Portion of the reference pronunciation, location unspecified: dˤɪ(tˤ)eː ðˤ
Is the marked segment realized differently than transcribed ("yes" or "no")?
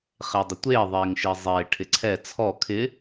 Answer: yes